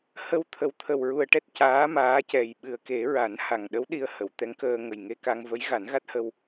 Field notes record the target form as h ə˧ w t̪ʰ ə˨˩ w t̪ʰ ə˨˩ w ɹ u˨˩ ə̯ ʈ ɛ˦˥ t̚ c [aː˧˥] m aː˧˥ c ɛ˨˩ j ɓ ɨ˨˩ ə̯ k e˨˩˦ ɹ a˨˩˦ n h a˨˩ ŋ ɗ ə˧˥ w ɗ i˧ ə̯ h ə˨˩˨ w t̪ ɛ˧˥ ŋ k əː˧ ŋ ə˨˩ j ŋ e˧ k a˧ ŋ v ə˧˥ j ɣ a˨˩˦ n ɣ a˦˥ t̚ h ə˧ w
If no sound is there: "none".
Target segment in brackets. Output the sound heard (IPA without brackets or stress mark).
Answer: aː˧˥